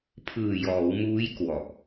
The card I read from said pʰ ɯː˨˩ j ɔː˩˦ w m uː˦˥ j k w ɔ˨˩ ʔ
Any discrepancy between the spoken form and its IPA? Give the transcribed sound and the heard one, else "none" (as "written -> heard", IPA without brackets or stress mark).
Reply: none